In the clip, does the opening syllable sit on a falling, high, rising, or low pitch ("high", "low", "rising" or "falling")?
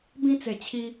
high